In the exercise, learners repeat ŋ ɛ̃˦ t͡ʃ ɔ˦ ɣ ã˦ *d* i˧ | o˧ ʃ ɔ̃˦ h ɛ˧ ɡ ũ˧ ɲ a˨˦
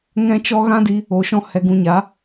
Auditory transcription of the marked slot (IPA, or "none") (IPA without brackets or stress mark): d